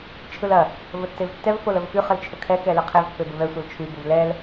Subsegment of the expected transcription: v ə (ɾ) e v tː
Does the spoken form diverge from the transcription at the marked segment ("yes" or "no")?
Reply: yes